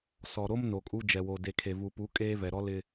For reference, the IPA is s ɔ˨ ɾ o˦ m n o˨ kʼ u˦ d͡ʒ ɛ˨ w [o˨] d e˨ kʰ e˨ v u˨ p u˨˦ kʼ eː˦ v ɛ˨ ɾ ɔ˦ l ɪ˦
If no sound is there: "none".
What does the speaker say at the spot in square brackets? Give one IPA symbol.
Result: o˨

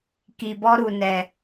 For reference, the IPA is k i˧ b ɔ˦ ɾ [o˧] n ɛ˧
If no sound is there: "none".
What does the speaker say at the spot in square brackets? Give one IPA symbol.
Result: u˧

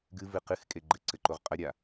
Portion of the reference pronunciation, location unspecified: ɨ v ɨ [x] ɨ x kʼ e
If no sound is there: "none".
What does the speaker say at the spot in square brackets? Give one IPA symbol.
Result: q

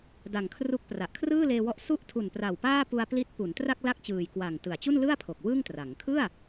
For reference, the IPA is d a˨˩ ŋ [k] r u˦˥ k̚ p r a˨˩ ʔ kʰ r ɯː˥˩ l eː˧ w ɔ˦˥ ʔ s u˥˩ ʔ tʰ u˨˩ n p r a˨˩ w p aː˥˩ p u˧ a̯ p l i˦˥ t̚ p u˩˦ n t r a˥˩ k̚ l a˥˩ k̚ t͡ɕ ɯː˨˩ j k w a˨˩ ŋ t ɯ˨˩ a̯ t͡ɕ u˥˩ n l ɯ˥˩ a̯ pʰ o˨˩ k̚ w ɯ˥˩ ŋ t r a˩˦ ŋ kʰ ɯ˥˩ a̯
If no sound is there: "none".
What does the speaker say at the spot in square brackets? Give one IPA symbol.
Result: kʰ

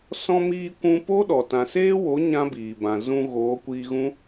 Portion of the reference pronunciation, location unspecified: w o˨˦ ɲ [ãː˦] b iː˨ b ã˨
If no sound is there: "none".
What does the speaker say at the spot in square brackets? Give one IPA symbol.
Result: ã˦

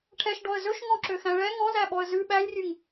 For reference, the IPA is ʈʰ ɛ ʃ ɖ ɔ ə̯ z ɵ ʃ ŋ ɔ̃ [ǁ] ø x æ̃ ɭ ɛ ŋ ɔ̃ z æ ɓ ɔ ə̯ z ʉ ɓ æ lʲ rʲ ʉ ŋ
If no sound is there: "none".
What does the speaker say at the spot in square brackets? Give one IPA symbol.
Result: ǁ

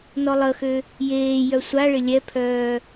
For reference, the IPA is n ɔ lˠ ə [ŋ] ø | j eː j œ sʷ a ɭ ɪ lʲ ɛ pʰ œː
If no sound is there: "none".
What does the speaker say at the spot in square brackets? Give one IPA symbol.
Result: x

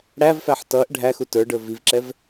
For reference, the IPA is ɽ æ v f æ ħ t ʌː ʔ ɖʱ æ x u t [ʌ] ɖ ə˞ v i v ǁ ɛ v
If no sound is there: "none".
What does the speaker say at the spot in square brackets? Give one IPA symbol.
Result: ə˞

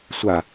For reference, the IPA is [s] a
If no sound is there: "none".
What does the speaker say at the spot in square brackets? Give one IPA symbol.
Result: sʷ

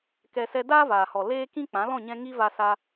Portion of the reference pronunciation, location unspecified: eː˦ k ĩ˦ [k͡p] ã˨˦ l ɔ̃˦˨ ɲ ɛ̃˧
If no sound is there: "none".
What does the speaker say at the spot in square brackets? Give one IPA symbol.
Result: k͡p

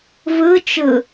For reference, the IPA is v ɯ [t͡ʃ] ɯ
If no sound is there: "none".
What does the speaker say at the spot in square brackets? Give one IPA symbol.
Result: t͡ʃ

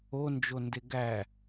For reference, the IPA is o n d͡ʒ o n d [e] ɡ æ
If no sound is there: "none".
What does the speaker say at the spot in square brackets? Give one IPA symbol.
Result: e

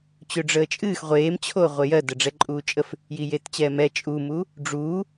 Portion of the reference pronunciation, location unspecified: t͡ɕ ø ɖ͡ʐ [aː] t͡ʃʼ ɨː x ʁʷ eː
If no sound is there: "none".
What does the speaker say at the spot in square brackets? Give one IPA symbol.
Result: əː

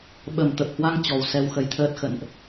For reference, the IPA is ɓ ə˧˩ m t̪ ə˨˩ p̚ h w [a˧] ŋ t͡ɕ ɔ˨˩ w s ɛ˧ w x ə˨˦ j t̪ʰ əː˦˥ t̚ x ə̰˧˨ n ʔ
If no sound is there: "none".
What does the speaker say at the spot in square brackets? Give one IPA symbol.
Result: a˧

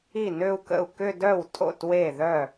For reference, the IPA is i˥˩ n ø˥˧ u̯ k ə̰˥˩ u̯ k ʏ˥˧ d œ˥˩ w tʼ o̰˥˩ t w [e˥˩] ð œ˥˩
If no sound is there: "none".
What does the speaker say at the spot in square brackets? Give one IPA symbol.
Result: e˥˩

